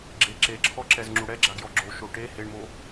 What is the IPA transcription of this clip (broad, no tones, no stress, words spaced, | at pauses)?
ɡ͡ǁe ǁeǁʰɔǁɛz ŋ͡ǁuɽɛɡ͡ǁaɡjɔ ɡ͡ǁo ʃoʈe heɳmo